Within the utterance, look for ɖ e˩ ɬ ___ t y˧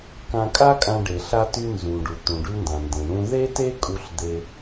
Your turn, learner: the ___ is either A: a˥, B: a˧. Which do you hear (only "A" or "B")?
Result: B